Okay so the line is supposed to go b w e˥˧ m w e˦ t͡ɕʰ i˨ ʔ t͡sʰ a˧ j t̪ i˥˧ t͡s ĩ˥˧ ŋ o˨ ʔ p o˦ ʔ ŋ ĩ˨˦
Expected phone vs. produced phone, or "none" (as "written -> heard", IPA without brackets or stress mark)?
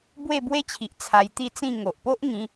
m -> b